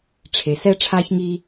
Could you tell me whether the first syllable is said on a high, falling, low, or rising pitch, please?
low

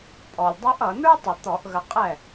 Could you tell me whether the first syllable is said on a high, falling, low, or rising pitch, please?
low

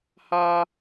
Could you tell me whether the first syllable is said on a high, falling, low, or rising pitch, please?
high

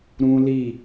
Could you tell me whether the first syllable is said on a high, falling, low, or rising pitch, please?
high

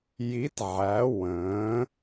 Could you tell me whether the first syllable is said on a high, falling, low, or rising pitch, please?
rising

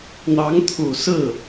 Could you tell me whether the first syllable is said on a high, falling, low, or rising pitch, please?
rising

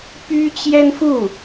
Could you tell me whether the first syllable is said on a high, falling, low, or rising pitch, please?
high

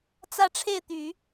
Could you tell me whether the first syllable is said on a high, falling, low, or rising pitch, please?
falling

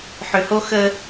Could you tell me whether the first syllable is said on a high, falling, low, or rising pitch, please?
low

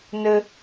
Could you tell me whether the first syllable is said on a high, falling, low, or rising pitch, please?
high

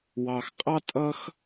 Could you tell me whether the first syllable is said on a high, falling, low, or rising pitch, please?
low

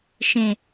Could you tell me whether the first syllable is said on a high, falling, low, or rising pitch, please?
low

